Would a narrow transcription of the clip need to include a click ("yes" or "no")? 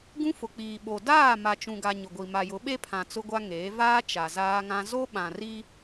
no